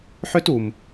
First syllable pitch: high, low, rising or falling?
high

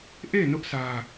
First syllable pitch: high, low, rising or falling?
falling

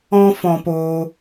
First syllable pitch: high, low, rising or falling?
high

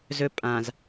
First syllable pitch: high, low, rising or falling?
high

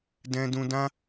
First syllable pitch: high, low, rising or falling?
high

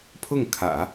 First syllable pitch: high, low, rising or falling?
falling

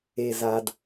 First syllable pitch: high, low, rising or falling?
low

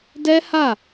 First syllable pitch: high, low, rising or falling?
high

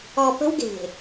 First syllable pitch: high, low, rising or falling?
low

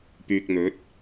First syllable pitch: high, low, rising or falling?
low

